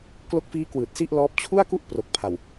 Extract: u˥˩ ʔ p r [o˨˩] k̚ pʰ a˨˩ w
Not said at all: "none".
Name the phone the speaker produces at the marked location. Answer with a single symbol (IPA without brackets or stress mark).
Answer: o˨˩